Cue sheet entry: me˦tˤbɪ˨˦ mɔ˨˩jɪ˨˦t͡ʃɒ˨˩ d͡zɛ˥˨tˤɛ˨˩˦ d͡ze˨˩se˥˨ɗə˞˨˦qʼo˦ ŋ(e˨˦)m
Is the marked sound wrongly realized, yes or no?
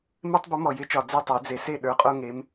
no